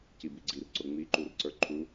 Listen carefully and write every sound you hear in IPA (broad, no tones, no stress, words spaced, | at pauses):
cibiɡ͡ǀir ǀʊŋ͡miǃurǀə˞ ǃʰu